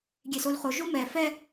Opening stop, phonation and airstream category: plain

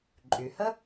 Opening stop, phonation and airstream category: click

